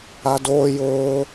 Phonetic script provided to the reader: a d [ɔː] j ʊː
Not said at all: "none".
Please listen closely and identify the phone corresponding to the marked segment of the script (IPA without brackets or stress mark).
oː